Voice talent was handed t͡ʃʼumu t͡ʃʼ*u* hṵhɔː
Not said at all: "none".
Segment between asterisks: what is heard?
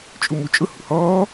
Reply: ʊ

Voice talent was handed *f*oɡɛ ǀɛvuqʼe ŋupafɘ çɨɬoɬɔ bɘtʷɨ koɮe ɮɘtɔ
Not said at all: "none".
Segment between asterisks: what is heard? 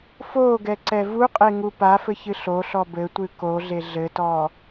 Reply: f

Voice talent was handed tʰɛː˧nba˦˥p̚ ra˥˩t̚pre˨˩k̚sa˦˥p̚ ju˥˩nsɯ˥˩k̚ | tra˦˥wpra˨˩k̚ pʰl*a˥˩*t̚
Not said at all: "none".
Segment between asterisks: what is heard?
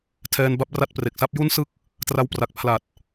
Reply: a˨˩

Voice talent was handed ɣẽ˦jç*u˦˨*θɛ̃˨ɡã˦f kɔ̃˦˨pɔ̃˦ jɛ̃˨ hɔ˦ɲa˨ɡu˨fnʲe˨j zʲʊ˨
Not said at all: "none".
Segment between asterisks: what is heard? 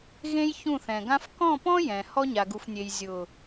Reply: ũ˦˨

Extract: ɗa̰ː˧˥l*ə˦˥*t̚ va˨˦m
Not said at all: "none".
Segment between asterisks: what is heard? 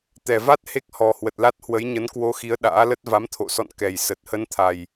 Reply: ə˦˥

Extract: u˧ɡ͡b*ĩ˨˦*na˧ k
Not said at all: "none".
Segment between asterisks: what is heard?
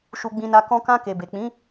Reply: ĩ˧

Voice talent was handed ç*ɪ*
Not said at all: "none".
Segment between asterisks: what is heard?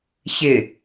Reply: ɪ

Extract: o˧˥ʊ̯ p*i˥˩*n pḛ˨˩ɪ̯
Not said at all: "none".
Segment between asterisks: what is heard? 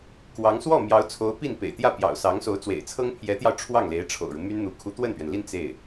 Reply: i˥˩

